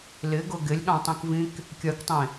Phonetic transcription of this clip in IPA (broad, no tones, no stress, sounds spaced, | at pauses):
l ɪ ɡ ʊ ɡ ɪ lʲ ɠ ɑ̃ tˤ ĩ k v ĩ k | kʲ ɜ k tˤ ĩ